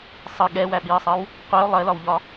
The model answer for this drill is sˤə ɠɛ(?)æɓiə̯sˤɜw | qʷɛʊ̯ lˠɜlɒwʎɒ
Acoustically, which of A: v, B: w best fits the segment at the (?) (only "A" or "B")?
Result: B